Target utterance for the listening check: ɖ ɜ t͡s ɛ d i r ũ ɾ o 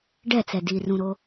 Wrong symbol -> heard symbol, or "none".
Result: ɜ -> ɛ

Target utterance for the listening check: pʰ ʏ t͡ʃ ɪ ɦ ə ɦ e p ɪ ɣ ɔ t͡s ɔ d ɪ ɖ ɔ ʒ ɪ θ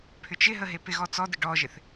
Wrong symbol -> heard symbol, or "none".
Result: none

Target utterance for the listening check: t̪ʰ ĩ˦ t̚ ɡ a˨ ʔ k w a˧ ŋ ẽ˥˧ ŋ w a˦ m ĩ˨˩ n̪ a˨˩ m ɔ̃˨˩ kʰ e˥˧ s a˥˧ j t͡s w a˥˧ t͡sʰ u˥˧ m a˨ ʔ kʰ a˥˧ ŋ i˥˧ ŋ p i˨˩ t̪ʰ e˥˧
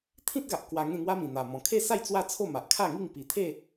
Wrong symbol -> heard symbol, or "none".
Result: u˥˧ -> o˥˧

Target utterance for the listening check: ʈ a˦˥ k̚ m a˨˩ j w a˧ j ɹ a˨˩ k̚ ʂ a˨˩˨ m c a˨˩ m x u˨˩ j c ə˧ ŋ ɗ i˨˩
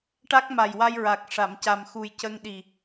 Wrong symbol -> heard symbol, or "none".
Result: none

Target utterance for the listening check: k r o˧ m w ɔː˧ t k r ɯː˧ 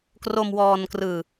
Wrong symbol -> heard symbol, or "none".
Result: t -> n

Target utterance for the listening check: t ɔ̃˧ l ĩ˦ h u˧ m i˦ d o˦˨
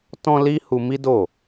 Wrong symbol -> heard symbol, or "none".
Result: ĩ˦ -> i˦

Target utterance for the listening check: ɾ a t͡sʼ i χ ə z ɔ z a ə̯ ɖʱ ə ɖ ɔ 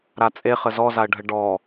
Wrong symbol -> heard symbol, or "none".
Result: i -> e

